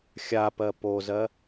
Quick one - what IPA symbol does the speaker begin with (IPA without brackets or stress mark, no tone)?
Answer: xʲ